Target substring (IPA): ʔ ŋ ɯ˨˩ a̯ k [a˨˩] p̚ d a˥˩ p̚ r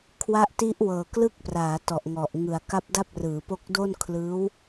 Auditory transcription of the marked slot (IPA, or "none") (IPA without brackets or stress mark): a˦˥